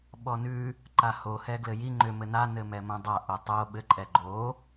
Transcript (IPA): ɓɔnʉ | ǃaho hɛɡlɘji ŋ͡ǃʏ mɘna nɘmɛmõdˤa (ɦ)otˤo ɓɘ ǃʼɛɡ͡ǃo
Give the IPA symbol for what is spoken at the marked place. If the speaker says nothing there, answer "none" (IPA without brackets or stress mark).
ʔ